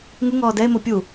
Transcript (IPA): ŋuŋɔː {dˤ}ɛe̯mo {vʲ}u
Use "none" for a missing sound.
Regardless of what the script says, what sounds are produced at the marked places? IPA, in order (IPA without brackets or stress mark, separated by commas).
d, pʲ